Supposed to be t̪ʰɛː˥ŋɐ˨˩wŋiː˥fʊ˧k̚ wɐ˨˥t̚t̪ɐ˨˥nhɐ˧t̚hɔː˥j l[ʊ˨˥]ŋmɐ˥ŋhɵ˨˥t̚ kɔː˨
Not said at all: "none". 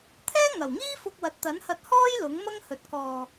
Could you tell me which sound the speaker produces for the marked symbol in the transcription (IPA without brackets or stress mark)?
ʊ˨˥